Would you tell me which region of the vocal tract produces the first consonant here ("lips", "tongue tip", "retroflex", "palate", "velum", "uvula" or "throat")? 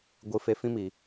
velum